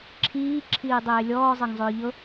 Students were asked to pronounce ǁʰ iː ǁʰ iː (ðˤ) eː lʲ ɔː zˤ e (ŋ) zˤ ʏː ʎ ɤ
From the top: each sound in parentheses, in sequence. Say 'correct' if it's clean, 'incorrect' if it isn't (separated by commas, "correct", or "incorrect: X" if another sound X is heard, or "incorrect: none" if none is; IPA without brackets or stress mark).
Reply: incorrect: dˤ, correct